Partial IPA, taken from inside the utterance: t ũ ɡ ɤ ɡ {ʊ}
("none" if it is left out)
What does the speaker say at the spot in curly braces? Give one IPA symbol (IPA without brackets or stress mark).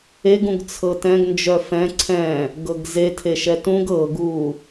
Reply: u